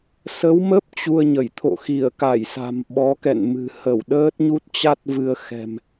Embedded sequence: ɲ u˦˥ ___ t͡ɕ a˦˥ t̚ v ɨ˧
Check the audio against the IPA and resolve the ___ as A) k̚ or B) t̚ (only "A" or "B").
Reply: B